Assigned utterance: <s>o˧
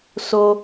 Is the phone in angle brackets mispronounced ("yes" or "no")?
no